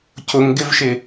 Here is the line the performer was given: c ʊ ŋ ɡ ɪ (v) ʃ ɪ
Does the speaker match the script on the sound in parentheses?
yes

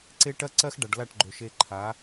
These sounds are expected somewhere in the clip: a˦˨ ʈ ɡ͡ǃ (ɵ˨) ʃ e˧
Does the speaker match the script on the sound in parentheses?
no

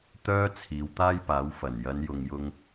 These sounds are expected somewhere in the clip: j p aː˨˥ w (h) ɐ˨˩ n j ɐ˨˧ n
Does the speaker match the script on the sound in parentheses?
no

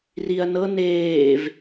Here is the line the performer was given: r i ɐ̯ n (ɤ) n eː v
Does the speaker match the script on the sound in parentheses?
yes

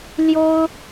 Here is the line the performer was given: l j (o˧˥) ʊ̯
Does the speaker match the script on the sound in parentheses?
no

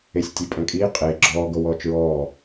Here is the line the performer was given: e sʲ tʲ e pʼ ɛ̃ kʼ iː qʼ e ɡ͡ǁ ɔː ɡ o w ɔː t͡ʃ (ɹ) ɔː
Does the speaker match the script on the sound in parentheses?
yes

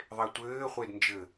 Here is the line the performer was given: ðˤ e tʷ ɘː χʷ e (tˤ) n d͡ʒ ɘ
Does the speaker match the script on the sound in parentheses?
no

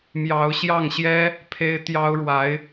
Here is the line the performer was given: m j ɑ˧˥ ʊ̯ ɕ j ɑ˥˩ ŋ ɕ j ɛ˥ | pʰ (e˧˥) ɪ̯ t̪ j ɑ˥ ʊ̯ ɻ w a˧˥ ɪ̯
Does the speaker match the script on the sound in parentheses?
no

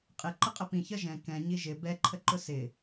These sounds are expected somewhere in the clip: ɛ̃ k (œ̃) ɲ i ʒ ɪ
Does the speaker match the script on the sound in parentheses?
no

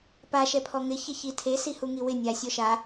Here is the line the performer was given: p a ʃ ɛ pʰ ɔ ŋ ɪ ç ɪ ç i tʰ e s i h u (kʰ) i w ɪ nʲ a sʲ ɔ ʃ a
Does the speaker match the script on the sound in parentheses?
no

